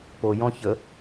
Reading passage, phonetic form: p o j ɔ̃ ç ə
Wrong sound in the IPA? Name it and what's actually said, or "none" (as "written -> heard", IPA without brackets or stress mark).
none